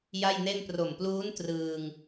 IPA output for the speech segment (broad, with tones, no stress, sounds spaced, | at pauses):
j a˥˩ j n e˥˩ n p r o˨˩ m p l uː˦˥ n t r ɯː˧ ŋ